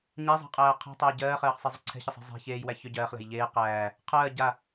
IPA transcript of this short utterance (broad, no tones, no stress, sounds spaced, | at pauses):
ɲ æ zˤ æ̤ qʼ æː qʰ ɛ̤ tˤ æ j ɟ ɜː χ ɜː χ sˤ e zˤ ʏ ǀʰ ɛ̤ ç ə sˤ ɛ̤ zˤ æ̤ ç eː j w æ ç ʏ ɟ ɜː χ l æ̤ j ʎ eː q æː | qʰ ɜː ɟ a